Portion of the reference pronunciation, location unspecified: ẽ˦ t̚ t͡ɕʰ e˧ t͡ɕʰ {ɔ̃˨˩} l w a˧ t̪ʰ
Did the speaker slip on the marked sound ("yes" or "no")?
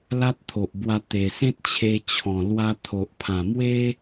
no